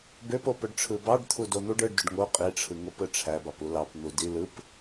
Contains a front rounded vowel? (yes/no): yes